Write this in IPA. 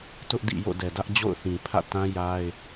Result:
tʊ˦ʔdḭ˦˨ jo̰˦˨dɛ˨dä˦ʔ d͡ʑo̰˦˨ʊ̯θĩ˨ pʰä̰˦˨ tã˦ja˦ɪ̯

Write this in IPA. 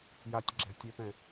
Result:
jatʲ ɡ͡ǁɛ̤ tʲøpɛ̃

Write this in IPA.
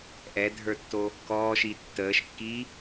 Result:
ʔɛdʱə˞tːo | kɔːʃi tːəːʃkːiː

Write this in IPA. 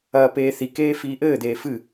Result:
ɐːpeːθikeː fiːʔɘːd̪eː fɨ

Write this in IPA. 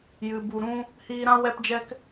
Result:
jɨ˨bu˨ɾũ˦ | hiː˧ɾã˦ wɛ˦pd͡ʒɛ˦k

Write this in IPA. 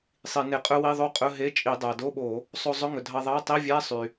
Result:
sˤi˧˩˧ne˧˩˧qʼɵ˦˥wi˧˥˧ ðˤo˦˥qʼɵ˧˥˧ɦe˧˥˧t͡ʃʼi˧˩˧ dˤæ˩do˧˥˧ɓo˧˩˧ | sˤo˧zˤɵ˧˥˧ŋɵ˩dʱɑ˧ ðˤɑ˧˥˧tˤi˧˥˧ vʲæ˧˥˧sˤy˩

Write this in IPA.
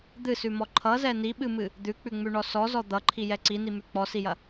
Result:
d̪ɨsʉmɔ ǃʰʌzɛ niɓɨmɨ | d̪ʉk͡pʉŋ͡mʉɳɔ sɔzɔ d̪ʌǃʰijɛ ǀinimʉ k͡pɔsijɐ

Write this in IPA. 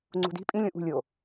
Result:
ŋ͡ǀṳdi̤ pʼĩ lʲõʔṳ lʲo

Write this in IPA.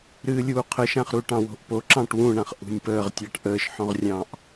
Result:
ɾɨːlʲuːqʰəʃãχ ɾuʈɑ̃wo̤ʔpo ǁɑ̃ʈwũɳãχ ʔṳnʲpəːʁtʲɑʈ ʔəːʃħɔ̃ʁrʲɑ̃ːʔ

